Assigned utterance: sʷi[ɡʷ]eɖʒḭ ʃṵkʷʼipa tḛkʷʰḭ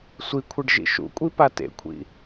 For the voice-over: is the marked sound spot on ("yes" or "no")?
no